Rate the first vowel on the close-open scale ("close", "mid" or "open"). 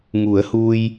close